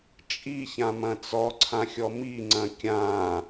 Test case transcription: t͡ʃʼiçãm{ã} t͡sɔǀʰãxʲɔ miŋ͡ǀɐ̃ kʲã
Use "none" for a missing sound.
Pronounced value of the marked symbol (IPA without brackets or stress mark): ɐ̃